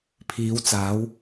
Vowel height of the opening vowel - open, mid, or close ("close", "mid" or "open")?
close